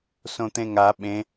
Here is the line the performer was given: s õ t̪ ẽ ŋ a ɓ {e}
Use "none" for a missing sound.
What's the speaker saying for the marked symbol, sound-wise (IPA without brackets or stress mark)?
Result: ẽ